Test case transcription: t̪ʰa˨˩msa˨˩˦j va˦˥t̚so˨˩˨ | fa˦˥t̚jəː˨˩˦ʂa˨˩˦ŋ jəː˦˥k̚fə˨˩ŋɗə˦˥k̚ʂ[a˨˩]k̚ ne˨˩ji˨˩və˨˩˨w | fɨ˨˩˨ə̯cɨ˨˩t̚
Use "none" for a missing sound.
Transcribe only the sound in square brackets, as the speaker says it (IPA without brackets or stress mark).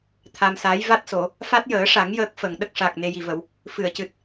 a˨˩